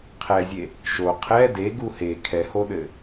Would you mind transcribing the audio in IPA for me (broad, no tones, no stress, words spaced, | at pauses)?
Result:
qʰɛzʲe | ʃo qʰɛ deɡu he kʰɛhoɗɘ